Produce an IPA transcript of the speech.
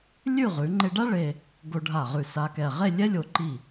lʲ ʉ˥˧ ʁ ʉ˩˧ ŋ͡ǃ e˧ ɖ a˥ ɭ e˧ | ɡ o˧ ɖʱ a˧˩ ʁ ʉ˧˩ s a˧ k ɛ˧˩ ʁ e˥˧ lʲ ɛ˥ lʲ o˧˩ ǃ i˧˩

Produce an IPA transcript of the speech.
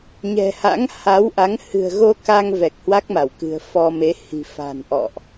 ɲ ɛ̤˨˩ h a̰˧˥ ŋ h a˨˦ w ʔ a˨˦ ŋ h ɨ̤˨˩ ə̯ ɣ o˧ k a˧ ŋ v ɛ˨˩ k̚ h w a˦˥ k̚ m a˧˩ w k ɨ̤˨˩ ə̯ f ɔ˧ m e˨˦ h i̤˨˩ f a̤˨˩ n ʔ ɔ̰˧˨ ʔ

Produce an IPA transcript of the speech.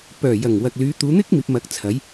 p œː˨˩ j ɐ˨˩ ŋ w ɐ˨ k̚ l yː˨˧ t̪ uː˨˧ n̪ ɪ˥ k̚ m iː˨ p̚ m ɐ˨˥ k̚ t͡sʰ ɐ˨˥ j

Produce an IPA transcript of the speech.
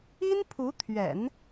i˥ n pʰ u˧˥ t̪ʰ ɥ ɛ̰˨˩˦ n

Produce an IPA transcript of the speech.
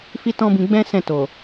f i˦ t ɔ̃˦ b ĩ˧ ɡ͡b ɛ̃˦ s ɛ̃˦˨ t o˨

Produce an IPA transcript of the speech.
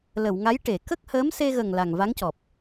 l ə˨˩˨ w ŋ a˧˥ j ʈ e˨˩˨ k ə˦˥ k̚ h əː˧˥ m s e˧ ɣ ə˨˩ ŋ l a˨˩ ŋ v a˧˥ ŋ c ɔ˨˩ p̚

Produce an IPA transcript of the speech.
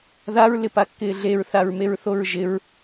ð a ɹ l ɪ p a kː ɪː ɮ e ɹ θ a ɹ m e ɹ θ o ɹ ʒ ɪ ɹ

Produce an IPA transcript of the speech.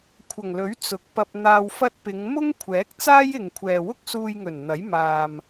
kʷʰ ɐ˨˩ ŋ l ɵ˨˥ ɥ t͡s ʊ˨˥ k̚ p ɐ˧ p̚ n̪ aː˧ w f ɐ˥ t̚ p ɪ˨˧ ŋ m ʊ˥ ŋ kʷʰ ɛː˨˥ k̚ t͡s aː˥ j ɪ˨ ŋ kʷʰ ɛː˨ w ʊ˥ k̚ s uː˧ j ŋ ɵ˨˩ n n̪ ɐ˨˥ j m aː˨ m

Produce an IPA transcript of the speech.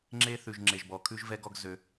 ŋ͡ǁ e˦ θ ʉ˨ ʒ ŋ͡ǁ e˨ ʒ b ɔ˨ kʰ ʉ˦ ʒ v ɛ˦ ɡ ɔ˦ ɡ z ø˧

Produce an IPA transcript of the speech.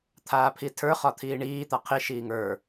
t̪ʰ aː pʰ i tʰ ə˞ χ ɒ t̪ʰ iː ɳ iː t̪ a qʰ i ʃ iː ŋ ə˞

